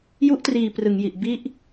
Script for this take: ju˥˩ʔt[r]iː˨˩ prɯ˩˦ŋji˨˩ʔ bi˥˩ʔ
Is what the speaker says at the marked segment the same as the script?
yes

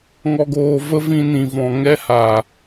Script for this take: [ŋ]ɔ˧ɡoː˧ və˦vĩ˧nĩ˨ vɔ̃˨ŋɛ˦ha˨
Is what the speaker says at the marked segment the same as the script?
yes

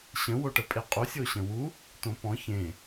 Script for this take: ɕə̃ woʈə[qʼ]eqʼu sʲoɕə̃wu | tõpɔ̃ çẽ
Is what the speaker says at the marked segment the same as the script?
no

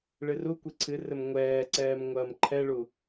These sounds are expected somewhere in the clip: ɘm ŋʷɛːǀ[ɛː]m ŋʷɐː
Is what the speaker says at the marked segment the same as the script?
yes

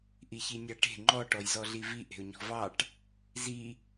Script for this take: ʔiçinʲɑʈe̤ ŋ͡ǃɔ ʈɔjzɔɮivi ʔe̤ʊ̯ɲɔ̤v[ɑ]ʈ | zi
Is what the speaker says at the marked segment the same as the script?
yes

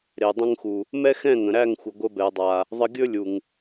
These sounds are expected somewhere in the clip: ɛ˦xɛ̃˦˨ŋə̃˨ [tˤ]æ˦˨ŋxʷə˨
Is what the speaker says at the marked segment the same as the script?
no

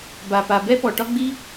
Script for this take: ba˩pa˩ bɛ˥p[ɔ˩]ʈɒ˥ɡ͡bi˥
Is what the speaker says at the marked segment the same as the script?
yes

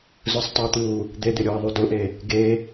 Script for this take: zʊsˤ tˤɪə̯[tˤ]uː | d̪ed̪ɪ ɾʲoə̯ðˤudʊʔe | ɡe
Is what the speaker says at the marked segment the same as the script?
no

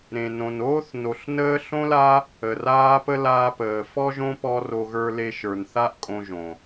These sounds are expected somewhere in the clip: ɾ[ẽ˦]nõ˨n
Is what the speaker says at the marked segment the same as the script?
no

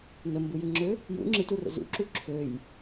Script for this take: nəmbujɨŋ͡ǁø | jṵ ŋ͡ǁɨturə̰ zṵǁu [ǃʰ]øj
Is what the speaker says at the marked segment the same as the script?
no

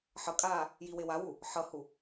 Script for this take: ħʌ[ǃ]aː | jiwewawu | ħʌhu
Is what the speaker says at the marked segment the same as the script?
no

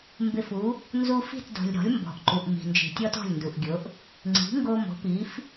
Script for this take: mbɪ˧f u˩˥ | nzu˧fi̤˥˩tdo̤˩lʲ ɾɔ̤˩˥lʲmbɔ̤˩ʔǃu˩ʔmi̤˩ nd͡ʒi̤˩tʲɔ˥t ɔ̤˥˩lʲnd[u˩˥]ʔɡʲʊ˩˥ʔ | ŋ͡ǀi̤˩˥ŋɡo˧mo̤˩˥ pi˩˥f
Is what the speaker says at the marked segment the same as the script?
no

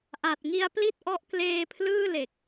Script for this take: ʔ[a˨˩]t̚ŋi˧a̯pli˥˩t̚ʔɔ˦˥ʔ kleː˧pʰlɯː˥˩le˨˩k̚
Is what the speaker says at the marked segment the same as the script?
yes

